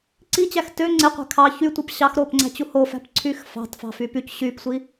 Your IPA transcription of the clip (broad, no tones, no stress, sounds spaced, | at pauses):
ǀ i t͡ɕ æ x t ø ŋ͡ǀ e qʷ æ̤ kʰ ɑ ç y tʷ æ p ɕ ɑ x ɾ oː p ŋ͡ǀ æ̤ t͡ɕ u h o f æ̤ p ǀʰ yː x f ɑ̤ t f ɑ̤ f y p y c ɕ yː p sʷ i